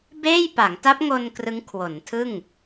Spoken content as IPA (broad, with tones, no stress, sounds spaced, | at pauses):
b eː˥˩ j p a˩˦ ŋ t a˦˥ p̚ ŋ o˧ n k r ɯ˦˥ ŋ kʰ w o˩˦ n tʰ ɯ˥˩ ŋ